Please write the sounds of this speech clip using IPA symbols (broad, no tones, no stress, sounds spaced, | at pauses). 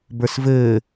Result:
b ə˞ s v ɘː